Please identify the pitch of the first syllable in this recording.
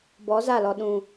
rising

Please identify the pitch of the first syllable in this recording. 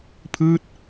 falling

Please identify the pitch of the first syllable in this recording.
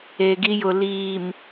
low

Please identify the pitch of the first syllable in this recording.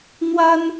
high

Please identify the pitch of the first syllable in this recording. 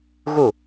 falling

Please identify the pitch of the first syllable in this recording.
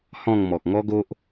falling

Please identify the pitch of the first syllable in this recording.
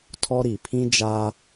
high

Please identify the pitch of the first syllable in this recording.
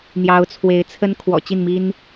rising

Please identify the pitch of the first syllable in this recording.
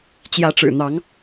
rising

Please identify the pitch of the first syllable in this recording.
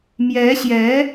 rising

